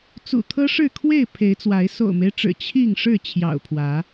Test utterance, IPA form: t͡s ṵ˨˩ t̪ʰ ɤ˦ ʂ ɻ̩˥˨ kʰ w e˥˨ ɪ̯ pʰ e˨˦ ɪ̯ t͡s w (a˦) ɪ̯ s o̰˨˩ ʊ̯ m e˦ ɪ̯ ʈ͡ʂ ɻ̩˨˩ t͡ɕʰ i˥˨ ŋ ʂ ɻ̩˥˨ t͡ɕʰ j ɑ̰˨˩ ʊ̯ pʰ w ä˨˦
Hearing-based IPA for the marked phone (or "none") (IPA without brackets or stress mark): a˨˦